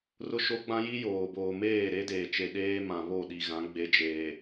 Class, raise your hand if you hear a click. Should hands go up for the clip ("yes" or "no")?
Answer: no